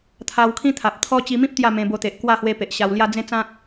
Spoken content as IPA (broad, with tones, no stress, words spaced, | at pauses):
t̪ʰa˧wkʰĩ˦ t̪ʰa˨p̚t̪ʰɔ˦ t͡ɕi˧mĩ˦p̚ t̪ja˥˧mẽ˧bo˧t̪e˨ʔ kwa˥˧ hwe˧ pe˨ʔɕa˧wlja˦ d͡zẽ˦t͡sã˦k̚